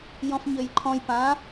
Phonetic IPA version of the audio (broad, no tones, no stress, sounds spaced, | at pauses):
j ɔ̃ f ɲ ø j ǃʰ ɔ̃ j p ã